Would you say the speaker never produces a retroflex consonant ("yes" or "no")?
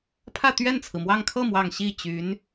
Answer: yes